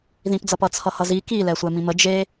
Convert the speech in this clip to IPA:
ð ĩ p d͡z ʌ p ʌ t͡sʰ ʌ h ʌ z i k i l ɛ sʷ ɛ m ĩ m ə d͡ʒ e

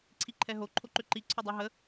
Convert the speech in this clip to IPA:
ǀʰ i ǃʰ ɛ ɦ o ǃʰ o ǃ ʏ ǃ i ǀʰ ʏ dˤ ʉ ɦ ə

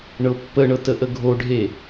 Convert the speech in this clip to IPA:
ɳ ɤ pː ə ɳ ɤ t ə ʔ ə ɡʱ o ɖʱ e

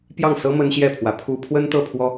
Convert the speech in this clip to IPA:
p j ɑ˥˨ ŋ s ɤ˦ m ə˦ n ɕ j ɛ˥˨ pʰ w ä˨˦ pʰ u˦ pʰ w ə˦ n t̪ ɤ˥˨ pʰ w ɔ˦

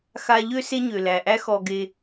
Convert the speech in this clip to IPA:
x a˧ ʎ ø˦ s e˦ ɲ ø˨ l æ˨ ʔ æ˦ x ɔ˧ ɡ e˧

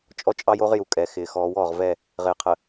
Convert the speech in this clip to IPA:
t͡ʃʼ ɔ˦ t͡ʃʼ ɑ˦ j o˦ ʁ j u˨ kʼ ɛ˨ x ɪː˨ x ɔː˨˦ w ɔː˨ ʁ v ɛ˦˨ | ʁ ɪː˨ qʰ ə˨

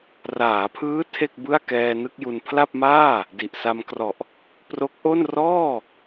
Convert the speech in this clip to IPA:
r aː˩˦ pʰ ɯː˦˥ tʰ e˥˩ k̚ b ɯ˥˩ a̯ k ɛː˧ n ɯ˥˩ k̚ j u˧ n pʰ l a˥˩ p̚ m aː˥˩ | d i˨˩ ʔ s a˧ m k r ɔ˨˩ ʔ | p r o˦˥ k̚ ʔ o˥˩ n r ɔː˥˩

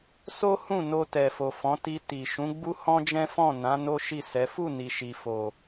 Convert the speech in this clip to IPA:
s o˦ h ũ˦˨ n o˧ t ɛ˨ f o˨ f ɔ̃˨˦ t i˧ t i˨ ʃ ũ˨˦ ɡ͡b u˦ h ɔ̃˦ d͡ʒ ɛ̃˦ f ɔ̃˦˨ n ã˨˦ n o˦ ʃ i˦˨ s ɛ˨˦ f u˦˨ n i˨ ʃ i˨ f o˨

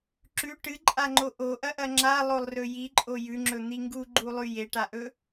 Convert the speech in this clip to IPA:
ǁ ʉ ʈ ɨ ǃʼ a ŋ͡ǃ o ʔ o ʔ ɐ ʔ ɐ ŋ͡ǁ a lˠ o lˠ r ɵ j i ǃʼ o j ʉ ŋ͡ǁ ɵ n̪ i ŋ ɡ u ɡ͡ǃ u lˠ ʉ j e ʈ a ʔ ɵ

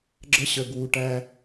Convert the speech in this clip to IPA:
ɡ͡ǁ ə˦ ɕ ə˨ ɡ w u˨ ʈ æ˦

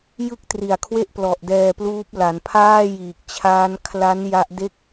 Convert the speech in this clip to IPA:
j ɯ˥˩ k̚ t r i˨˩ a̯ kʰ w e˥˩ ʔ p l ɔ˨˩ ʔ d ɛː˧ p l uː˦˥ p̚ l a˩˦ n pʰ aː˥˩ j iː˨˩ k̚ t͡ɕʰ aː˦˥ n kʰ l a˦˥ n j a˦˥ ʔ d e˥˩ k̚

